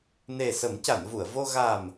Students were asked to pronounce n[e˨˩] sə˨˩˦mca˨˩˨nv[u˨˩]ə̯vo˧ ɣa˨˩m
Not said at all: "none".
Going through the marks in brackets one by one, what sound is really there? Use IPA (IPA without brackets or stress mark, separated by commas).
e˨˩, u˨˩˨